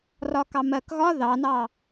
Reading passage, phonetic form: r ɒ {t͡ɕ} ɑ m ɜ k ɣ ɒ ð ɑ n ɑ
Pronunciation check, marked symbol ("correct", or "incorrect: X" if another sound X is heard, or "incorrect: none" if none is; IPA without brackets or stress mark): incorrect: k